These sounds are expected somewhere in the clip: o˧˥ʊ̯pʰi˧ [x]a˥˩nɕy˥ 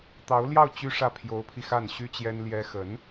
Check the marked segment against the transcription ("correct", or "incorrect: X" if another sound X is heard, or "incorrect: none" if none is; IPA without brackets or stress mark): correct